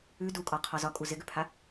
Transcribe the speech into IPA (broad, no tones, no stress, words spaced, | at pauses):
ʉ dukʼɒqʰɒ zɒkʼu zɪɡʉpʰa